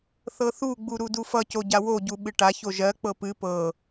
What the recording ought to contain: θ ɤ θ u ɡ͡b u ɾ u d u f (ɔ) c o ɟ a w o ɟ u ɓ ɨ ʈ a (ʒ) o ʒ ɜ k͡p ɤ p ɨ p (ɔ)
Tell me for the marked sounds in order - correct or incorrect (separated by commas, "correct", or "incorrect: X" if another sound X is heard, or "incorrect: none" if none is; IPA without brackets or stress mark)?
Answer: incorrect: ʌ, incorrect: ç, incorrect: ɤ